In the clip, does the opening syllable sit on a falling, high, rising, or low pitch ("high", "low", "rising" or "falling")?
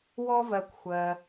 high